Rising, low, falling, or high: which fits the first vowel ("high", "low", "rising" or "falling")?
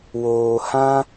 low